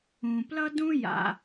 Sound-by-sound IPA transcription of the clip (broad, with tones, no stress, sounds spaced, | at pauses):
ũ˩ p l ʌ˥ d ũ˥ j a̰˩